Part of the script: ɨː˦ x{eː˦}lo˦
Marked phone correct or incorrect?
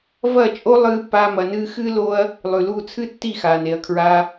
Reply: incorrect